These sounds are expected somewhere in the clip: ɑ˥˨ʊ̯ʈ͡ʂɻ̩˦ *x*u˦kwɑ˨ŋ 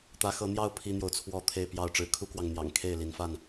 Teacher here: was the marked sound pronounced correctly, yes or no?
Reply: no